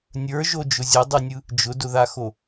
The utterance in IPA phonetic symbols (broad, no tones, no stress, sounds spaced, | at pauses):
nʲ ə˞ ʒ o d͡ʒ ʊ zʲ ʊ dˤ ʉ nʲ ɯ | d͡ʒ ʊ d ʊ ð a x o